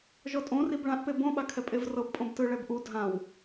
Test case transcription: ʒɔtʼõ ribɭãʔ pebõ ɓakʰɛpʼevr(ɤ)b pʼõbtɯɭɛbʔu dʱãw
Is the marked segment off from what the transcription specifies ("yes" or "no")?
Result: no